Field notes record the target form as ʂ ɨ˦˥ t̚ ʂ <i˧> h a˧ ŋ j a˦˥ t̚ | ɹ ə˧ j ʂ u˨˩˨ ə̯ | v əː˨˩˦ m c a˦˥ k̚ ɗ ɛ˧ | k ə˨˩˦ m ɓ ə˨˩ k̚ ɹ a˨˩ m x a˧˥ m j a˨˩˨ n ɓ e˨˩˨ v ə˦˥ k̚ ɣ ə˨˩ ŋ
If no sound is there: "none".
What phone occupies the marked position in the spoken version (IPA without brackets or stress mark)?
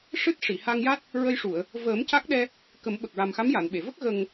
i˨˩˨